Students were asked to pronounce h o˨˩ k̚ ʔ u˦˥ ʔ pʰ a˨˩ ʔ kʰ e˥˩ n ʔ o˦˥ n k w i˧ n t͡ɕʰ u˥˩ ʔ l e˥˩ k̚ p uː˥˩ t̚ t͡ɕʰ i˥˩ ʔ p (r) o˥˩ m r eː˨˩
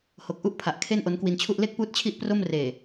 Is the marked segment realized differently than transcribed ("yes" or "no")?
no